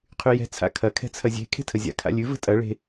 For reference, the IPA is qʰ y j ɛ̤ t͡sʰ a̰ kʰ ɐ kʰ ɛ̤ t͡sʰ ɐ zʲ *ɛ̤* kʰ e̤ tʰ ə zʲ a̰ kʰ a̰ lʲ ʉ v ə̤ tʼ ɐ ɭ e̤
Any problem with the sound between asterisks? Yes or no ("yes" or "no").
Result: yes